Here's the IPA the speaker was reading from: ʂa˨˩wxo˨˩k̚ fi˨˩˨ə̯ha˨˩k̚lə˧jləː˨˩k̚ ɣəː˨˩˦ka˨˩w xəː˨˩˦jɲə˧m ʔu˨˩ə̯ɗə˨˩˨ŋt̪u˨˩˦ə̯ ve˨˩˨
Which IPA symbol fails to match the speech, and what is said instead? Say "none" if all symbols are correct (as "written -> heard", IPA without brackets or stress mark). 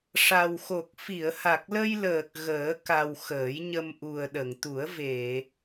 none